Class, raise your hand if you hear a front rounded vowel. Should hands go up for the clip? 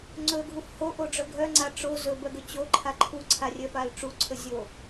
yes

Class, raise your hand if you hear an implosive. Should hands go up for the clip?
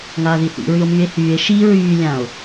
no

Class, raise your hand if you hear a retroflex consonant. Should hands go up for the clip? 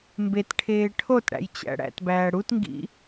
yes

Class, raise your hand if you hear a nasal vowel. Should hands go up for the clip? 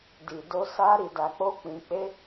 yes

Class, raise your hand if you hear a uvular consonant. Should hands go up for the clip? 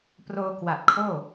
no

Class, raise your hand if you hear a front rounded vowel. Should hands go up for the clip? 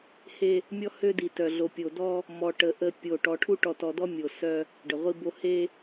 yes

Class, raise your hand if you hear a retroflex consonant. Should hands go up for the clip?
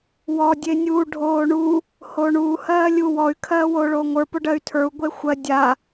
yes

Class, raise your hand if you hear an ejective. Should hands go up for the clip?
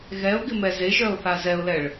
no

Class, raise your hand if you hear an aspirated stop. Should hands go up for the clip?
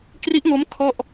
yes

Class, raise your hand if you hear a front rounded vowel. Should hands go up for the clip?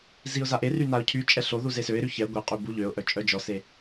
yes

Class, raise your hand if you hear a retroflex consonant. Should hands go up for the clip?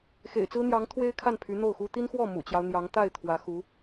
no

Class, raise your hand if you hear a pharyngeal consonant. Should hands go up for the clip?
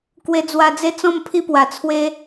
no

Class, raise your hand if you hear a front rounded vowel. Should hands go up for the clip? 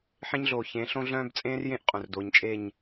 yes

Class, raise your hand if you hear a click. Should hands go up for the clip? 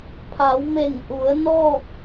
no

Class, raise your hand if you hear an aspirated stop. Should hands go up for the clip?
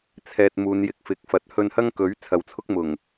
yes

